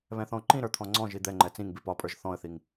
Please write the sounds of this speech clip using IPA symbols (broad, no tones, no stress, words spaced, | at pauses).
βɛ̃θɔ̃ʊ̯ǃĩɾə˞ t̪ʰɔ̃ŋ͡ǀɔ̃ʒi d̪ɛŋ͡ǃɛ t͡sĩŋbi pɒpʼə˞ʒ θɔ̃ə̯θiŋ